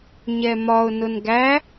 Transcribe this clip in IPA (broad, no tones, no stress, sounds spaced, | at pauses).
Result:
ɲ ɛ m ɒ ʊ̯ n ʊ n ɡ æ